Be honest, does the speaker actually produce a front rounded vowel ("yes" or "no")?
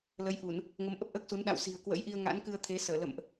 no